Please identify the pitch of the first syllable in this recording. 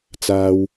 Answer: low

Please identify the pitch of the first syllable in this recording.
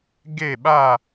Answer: falling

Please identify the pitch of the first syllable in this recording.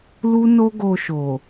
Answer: high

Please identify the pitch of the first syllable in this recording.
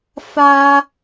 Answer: high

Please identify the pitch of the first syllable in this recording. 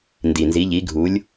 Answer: low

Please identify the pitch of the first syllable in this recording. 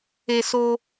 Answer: high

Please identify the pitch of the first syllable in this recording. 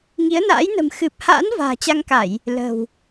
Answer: rising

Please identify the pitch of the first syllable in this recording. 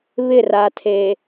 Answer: falling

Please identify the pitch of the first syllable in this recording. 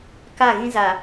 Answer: falling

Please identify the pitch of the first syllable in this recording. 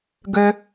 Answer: high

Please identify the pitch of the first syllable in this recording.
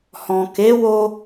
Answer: low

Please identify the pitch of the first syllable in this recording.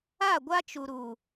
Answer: falling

